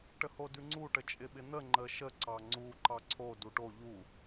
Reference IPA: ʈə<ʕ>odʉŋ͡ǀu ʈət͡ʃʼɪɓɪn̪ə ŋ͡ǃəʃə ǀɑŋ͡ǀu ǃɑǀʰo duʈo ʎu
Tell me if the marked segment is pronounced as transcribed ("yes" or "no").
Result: no